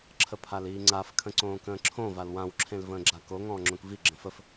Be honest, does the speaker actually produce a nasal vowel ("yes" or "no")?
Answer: yes